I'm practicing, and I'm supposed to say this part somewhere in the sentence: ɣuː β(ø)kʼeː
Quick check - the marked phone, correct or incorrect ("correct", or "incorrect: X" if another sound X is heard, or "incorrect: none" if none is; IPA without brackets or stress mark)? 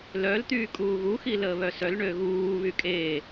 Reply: incorrect: y